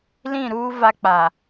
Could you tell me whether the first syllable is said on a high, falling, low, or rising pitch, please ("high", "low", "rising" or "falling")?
falling